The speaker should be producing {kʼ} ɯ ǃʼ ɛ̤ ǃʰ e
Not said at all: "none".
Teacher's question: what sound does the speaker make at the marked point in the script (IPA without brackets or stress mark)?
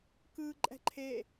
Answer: k